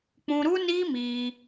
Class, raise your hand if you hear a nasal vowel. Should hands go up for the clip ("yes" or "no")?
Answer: yes